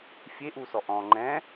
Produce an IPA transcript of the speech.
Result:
fʲeʔusɔ ʔɔ̃ ŋ͡ǃɛ̃

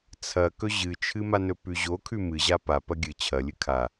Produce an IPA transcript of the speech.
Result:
t͡sʰɐkɵ ʑɨt͡ʃʰɨma nɵpʉʑo kʰʉmɨʑa pa pɐɡʲɨ t͡ɕʰɐlʲɨ kʰa

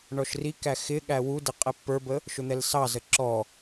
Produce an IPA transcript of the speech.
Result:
ɳɔʃrikæ xɪ ɠæwudɪ qʼɛpːə˞bə | ʃʊn̪ɛlsɑzə ǁɔ

